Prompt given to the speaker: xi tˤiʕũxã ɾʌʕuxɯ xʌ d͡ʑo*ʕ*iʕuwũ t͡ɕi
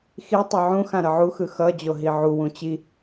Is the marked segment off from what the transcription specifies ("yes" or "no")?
yes